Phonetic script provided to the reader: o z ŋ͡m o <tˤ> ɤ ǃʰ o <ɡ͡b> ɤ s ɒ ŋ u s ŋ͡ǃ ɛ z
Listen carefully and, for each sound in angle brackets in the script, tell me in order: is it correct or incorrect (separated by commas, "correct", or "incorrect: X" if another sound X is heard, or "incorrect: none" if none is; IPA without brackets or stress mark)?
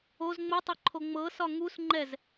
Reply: correct, incorrect: ŋ͡m